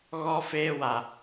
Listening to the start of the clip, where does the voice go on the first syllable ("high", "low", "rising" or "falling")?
high